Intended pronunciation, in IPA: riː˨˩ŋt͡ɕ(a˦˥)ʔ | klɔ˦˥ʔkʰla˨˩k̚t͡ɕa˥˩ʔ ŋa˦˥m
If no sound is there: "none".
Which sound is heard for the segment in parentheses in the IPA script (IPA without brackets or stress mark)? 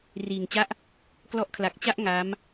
a˦˥